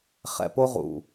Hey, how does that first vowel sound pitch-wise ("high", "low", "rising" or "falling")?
low